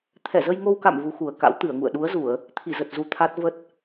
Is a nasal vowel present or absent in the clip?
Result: absent